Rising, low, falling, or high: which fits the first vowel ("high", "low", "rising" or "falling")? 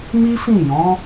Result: high